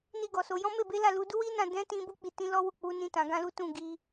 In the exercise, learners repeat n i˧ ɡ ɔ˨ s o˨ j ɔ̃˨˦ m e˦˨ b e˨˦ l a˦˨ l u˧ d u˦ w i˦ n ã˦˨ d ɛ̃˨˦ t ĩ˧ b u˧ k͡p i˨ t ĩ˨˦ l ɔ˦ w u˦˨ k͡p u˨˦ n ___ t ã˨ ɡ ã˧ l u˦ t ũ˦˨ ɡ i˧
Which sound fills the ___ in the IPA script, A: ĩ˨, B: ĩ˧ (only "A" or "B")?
B